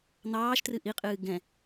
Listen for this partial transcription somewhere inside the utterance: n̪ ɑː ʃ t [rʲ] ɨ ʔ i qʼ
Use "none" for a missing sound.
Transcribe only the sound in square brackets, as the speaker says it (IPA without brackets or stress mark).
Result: r